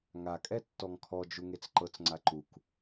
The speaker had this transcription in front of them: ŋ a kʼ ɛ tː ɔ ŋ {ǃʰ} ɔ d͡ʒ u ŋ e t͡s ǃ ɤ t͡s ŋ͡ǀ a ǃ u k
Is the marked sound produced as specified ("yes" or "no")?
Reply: no